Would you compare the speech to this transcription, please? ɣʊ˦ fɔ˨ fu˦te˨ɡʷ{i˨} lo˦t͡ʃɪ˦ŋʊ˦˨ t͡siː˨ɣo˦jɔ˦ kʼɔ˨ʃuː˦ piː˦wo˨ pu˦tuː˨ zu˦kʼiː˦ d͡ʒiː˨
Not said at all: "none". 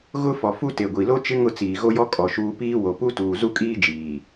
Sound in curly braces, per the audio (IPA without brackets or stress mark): i˨